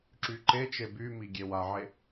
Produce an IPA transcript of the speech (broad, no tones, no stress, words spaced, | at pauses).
ǁyǃet͡ʃe bymi ɡʲewaʕe